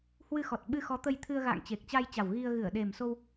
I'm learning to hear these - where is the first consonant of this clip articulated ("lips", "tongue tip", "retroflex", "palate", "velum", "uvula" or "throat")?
throat